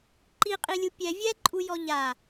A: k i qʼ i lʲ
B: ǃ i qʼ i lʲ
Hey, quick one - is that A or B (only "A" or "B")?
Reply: B